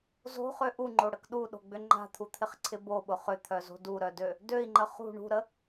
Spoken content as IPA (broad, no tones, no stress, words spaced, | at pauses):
zo̤χø ʔuŋ͡ǃoɽək ɗuɗo̤ɡ͡bʏ ŋ͡ǃa̤t̪ʰut̪ʰɪχǀʰɪ boɓʊ χʏt̪ʰœzo̤ duɾœdø | døi̯ŋ͡ǃə χṳ ɳṳɾə